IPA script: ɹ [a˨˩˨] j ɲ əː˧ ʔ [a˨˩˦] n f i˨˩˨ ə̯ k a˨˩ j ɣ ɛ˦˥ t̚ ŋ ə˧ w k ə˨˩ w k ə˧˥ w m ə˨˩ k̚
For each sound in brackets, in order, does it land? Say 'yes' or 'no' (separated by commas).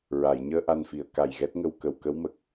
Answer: yes, no